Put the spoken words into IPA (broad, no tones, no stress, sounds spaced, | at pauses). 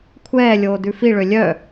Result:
kʷʰ ɛː lʲ oː d ʉ f i ɭ ø lʲ œ